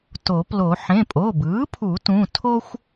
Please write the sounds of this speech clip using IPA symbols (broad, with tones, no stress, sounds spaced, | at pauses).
t o˨˩˦ p l o˨˩˦ ħ ẽ˩˧˩ pʼ o˩˧˩ b ɯː˩˥ pʰ u˨˩˦ t ũ˩˧˩ tʰ o˦ xʷ